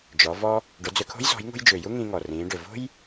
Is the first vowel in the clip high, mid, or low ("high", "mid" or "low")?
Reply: mid